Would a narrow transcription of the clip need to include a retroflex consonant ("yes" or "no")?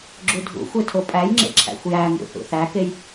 no